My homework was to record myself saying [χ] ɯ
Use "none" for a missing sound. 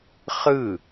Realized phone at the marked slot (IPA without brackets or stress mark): χ